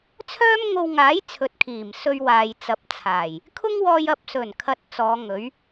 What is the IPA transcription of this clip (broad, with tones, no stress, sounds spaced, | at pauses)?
t͡sʰ œː˥ m ŋ o˧ w ŋ aː˨˥ j t͡sʰ ɵ˨˥ t̚ kʰ iː˨˩ m s ɵ˧ ɥ w aː˨ j t͡s ɐ˨˥ p̚ t͡sʰ aː˨˩ j | kʰ ʊ˥ ŋ w ɔː˧ j ɐ˨ p̚ s ɵ˨˩ n kʰ ɐ˥ t̚ t͡s ɔː˨˧ ŋ ɵ˨˥ ɥ